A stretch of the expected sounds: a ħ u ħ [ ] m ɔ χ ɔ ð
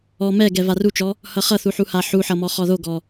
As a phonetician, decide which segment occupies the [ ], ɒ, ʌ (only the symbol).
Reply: ʌ